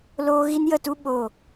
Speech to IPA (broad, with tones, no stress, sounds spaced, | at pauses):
l oː˦ ɣ i˦ n j ə˦˨ t u˦ ɓ o˦˨